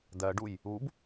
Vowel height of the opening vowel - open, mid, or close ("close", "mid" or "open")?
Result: mid